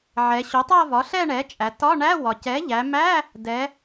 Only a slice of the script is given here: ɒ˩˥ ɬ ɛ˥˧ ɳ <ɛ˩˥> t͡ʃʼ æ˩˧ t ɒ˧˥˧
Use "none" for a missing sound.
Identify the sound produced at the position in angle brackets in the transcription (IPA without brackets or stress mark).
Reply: ɛ˩˥